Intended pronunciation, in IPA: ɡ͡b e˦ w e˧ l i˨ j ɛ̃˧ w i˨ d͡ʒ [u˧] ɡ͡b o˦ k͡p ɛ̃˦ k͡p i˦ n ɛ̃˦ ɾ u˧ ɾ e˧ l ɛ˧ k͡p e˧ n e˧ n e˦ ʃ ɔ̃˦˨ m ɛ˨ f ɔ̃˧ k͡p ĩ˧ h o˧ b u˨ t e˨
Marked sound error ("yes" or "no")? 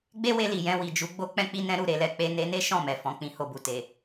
no